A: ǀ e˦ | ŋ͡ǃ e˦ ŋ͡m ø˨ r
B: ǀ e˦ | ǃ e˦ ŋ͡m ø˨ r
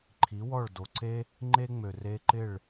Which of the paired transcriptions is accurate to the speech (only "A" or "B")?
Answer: A